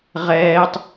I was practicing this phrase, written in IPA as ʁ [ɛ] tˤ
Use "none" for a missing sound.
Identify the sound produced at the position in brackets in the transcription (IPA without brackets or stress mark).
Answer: ɛː